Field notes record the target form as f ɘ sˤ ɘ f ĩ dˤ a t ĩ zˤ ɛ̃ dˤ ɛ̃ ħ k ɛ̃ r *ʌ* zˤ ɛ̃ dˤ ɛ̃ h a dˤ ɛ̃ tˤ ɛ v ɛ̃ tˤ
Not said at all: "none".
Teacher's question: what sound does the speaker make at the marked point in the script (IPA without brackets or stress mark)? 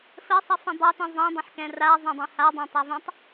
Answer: a